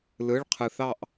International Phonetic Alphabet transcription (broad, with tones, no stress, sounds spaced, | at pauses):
l ɯ˧˥˧ ɭ qʰ ɯ˧ θ ɑ˥˧ ʔ